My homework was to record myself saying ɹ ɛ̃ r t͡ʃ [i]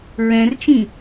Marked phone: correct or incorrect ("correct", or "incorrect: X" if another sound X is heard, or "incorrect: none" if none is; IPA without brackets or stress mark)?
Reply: incorrect: ĩ